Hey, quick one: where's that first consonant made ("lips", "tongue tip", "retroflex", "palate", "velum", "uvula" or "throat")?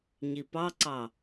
palate